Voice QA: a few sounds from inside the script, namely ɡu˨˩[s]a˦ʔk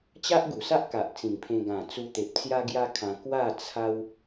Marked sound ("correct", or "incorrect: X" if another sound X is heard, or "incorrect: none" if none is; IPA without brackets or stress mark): correct